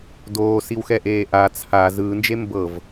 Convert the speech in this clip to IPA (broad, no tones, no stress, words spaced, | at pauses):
doːsiwxɛʔeː ʔa t͡sʰa zɯːnd͡ʒe mbɤv